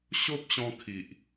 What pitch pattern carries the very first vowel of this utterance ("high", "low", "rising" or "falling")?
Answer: high